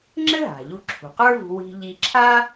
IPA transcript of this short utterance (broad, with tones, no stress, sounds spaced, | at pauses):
ŋ͡ǁ ɘ˥ ɦ a̤˩ ʎ u˧ ǁʰ ṳ˩ q ə˞˥ v ṳ˧ w i̤˧ ʎ i˧ ǁʰ a˥